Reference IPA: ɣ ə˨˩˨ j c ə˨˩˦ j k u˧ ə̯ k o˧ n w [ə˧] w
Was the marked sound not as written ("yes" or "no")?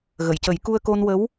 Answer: yes